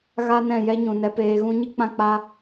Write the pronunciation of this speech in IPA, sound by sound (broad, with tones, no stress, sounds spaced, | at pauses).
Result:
ɣ a˦ n ɛ̃˦˨ j ɛ˦ ɲ ũ˨ n ɛ˧ p eː˧ ɣ ũ˦ ɲ ɨ˦ k͡p ã˦ k͡p a˦